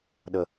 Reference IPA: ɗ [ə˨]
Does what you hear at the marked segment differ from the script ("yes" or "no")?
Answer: no